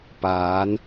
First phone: p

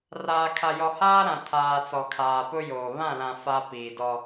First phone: r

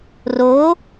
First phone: r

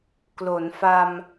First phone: k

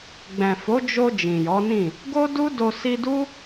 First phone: ɡ͡b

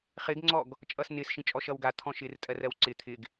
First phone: χ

